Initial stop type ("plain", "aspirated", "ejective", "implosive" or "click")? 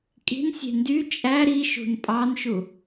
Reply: ejective